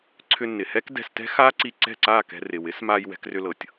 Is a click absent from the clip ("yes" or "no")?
no